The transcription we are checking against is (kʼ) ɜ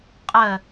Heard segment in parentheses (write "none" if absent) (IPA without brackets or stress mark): qʼ